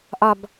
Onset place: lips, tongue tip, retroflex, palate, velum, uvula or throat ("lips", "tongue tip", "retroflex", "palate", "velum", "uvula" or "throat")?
throat